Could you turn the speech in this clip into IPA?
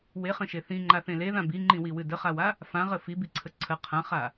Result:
weχə̃ʃe θĩŋ͡ǃaθẽ leðã biŋ͡ǃĩwiwɨ dəχawa | fãʁə fibiǀʰə ǀʰə qʰãχa

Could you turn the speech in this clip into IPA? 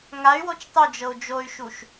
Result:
ŋay̯wot͡ʃ tˤud͡ʒɤu̯ d͡ʒoy̯ʃuʃ

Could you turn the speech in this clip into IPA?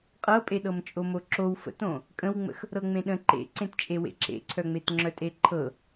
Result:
qʼɤpʼeɗɤm t͡ʃʼomoǁow fə̰tõ | kʼə̃wŋ͡mə̰x | ɾɤŋ͡mẽɗə̃ ǃḛǀẽtt͡ʃʼe wḛǁḛǀʰœŋ͡met ŋ͡ǁœtʼeǃʰɤ

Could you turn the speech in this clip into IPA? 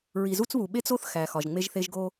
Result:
ɹi˨zu˦t͡sβu˨ ɓe˦t͡so˦θ xæ˨xɒ˨ʒŋ͡me˦ʒθe˦ʒ ɡo˦

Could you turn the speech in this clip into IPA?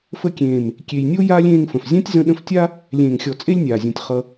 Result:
fə˧kʲẽː˨m | kʲe˨jnʲo˦ jaː˦lʲ ẽː˧ŋfə̃˨f zʲã˦tʲzə̃˧ɗə̃˧ftʲa˦ | lʲẽː˨ŋxʲɔ˨ t͡sʼe˦lʲnʲaː˨zʲũ˨tʲ χʌ˧

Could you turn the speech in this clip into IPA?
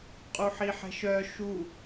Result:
qʼuħiħɛ̤ʃœ ʃu

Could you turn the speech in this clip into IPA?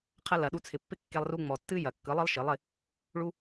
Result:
qʰɐ˧lɐ˨ɗu˧t͡sʰɪ˨ pːɪ˦ kːe˦lˠru˦ ŋ͡mɔ˨tːɨ˦ jɐ˨kːɯ˨˦ lˠɯ˦lˠʃɨ˨˦lˠɪ˧ | ɭu˦

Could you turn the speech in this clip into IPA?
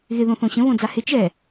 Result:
ɣɪ ðõθõɕə̃ βõd͡zahɪ t͡ʃɛ

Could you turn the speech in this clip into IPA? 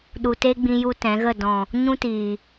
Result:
ɗu˨te˦ ɡ͡bĩ˧ju˧ tɛ̃˨˦ɣə˦˨ dɔ̃˨ | ɲũ˦tiː˨

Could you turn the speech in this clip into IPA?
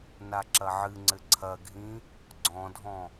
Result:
naǁɐʕɨŋ͡ǀɘ ǀʰɐɡʱĩ | ɡ͡ǀɔ̃dʱɔ̃

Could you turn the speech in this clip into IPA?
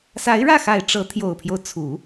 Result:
sa˧˥ɪ̯ɻä˥˩xa˨˩ɪ̯ ʈ͡ʂɤ˧˥t̪ʰjo˨˩ʊ̯pʰjo˦ʊ̯t͡sʰu˨˩˦

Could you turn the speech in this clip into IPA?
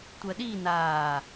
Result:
tʷɜɗi naː

